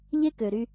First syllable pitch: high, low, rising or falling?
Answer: high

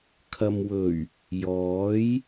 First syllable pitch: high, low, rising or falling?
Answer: low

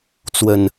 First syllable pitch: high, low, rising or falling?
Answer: low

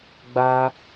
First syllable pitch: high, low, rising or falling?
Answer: high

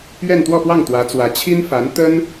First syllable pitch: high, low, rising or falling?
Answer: falling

